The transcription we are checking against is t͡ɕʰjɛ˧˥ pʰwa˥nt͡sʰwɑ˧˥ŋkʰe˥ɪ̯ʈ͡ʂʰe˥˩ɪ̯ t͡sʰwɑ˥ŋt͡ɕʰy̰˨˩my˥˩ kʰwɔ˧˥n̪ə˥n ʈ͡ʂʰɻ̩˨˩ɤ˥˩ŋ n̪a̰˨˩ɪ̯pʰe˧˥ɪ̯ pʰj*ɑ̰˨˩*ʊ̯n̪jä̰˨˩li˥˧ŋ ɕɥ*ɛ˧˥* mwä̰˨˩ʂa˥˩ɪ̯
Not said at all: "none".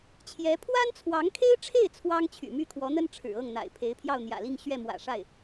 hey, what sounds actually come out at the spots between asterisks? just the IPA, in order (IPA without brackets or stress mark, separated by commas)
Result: ɑ˥˩, ɛ˥˩